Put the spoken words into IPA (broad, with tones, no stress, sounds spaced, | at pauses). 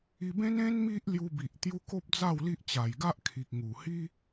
i˧ b ẽ˦ n ẽ˦ n m i˦ ʔ l j u˧ b i˨ ʔ t̪ j u˦ k o˦ p̚ d͡z a˥˧ w l i˦ ʔ t͡ɕ a˨˩ j ɡ a˦ ʔ kʰ i˨ k̚ ŋ u˨˩ h i˦